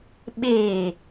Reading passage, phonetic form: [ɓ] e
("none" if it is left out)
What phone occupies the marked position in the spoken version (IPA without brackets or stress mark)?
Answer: ɓ